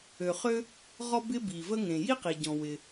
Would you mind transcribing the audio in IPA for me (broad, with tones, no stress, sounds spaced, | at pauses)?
ø˩ χ ø˥ | ʁ ɔ˥ b ɪ˥ b i˩ v ə˥ ŋ ẽ˩ j i˥ q i˩ ɟ ɔ̃˩ w ɪ˩